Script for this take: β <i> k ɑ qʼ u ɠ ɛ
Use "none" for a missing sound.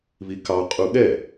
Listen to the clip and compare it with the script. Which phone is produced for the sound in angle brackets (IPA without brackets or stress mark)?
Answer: i